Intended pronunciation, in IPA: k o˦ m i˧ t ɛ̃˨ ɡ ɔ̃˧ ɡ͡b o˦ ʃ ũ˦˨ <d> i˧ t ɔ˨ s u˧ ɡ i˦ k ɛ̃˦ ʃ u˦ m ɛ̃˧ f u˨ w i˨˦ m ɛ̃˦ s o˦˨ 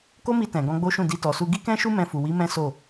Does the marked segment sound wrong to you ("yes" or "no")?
no